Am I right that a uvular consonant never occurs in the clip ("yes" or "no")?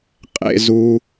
no